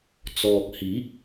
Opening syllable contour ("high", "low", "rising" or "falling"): low